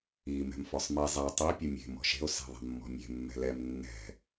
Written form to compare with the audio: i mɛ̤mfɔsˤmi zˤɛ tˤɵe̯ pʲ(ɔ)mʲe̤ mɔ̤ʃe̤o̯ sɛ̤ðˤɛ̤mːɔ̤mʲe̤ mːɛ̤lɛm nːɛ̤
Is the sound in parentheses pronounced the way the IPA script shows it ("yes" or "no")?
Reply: no